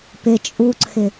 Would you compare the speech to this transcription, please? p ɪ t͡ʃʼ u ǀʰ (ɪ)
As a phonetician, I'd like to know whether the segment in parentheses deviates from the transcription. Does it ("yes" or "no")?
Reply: no